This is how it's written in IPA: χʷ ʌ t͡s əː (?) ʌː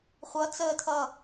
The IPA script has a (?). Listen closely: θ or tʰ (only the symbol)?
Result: tʰ